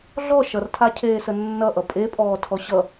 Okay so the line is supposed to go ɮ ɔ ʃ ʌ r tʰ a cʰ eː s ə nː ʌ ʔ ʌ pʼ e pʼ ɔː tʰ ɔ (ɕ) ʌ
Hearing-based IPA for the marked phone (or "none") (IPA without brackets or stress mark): ɕ